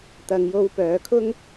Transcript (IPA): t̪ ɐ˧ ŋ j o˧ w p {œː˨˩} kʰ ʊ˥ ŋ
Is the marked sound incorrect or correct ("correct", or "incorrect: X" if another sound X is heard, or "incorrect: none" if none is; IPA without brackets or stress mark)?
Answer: incorrect: œː˨˧